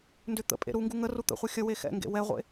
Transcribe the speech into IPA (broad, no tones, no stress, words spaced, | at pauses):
ndʏ t̪ə̰ pʼḛɾuŋɡu ŋə rut̪ə̰χʷe xʲəwe xɛ̰ŋɡḛ wɛʁʷḛ